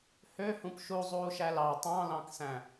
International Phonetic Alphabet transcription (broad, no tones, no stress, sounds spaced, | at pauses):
h ø h ũ p ʃ u zˤ uː ʃ æ l ɑ tˤ ɑ̃ l ɑ̃ k s æ̃